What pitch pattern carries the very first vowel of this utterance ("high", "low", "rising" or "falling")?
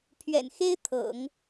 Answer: low